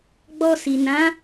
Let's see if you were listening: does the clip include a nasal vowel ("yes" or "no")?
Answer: yes